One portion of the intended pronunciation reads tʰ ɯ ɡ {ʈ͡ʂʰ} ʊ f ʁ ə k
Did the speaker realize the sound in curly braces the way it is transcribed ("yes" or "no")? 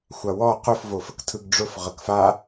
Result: no